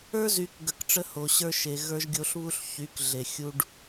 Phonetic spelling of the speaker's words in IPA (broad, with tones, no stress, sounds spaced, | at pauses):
ə˞˦ z y˧ k ɡ ə˦˨ k ʈ͡ʂ ə˦ h o˧ ɕ ə˞˦ ʃ e˧ ɣ ə˞˧ ʒ ɡʲ o˧ ɬ β u˧ ɬ ç y˨˦ k ɮ e˨ xʲ u˧ ɖ